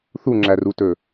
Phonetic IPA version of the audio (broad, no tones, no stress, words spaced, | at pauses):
θuŋ͡ǁærutɵ